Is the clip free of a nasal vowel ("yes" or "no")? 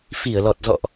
yes